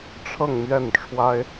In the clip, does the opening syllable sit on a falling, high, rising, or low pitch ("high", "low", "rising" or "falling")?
falling